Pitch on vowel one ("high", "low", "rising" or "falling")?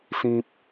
high